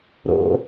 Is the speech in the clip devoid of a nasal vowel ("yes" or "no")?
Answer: yes